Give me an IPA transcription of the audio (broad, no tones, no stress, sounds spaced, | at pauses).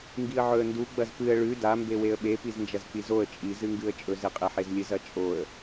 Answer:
ŋ ɡ i ə̯ ʕ ɵ ə̯ n d u ɡ͡b ɐ z p ɨ ə̯ ɭ ʉ d a m b e w e ə̯ ɓ e p i z n d͡ʒ ɐ z k͡p i z o ə̯ t͡ʃʼ i z ɨ ŋ ɡ ɨ ə̯ t͡ʃʼ ɵ z e qʼ e ħ e z lʲ ɨ z ɐ t͡ʃʼ o ə̯